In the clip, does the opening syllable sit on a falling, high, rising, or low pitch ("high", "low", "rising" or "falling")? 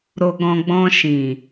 low